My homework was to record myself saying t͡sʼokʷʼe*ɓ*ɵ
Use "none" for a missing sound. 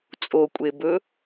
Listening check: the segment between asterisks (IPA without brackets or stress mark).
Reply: b